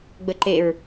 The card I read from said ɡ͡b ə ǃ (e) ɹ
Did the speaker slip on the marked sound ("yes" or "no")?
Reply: no